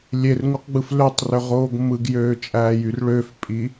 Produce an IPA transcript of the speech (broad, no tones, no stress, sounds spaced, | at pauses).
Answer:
lʲ e r ŋ u q ɡ͡b ɯ f l ø tˤ r ø ʁ oː ɡ m ɯ ɡ j øː t͡ʃʼ æː j y r ɭ ø f pʼ i